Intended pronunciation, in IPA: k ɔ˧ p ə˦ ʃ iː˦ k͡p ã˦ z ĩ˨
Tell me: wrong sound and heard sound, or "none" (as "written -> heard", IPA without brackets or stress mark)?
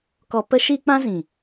none